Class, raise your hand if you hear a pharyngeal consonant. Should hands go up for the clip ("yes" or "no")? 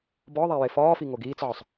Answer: yes